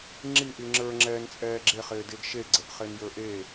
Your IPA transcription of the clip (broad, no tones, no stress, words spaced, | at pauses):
ŋ͡ǁiʔi ŋ͡ǁə˞ŋ͡ǁɛːnt͡sʼɛː ɡ͡ǁeχɪːdɪːɡ ʃe ɡ͡ǀəʔχenjə˞ ʔe